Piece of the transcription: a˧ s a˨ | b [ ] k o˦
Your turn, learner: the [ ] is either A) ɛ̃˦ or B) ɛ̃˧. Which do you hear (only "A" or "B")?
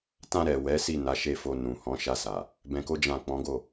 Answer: B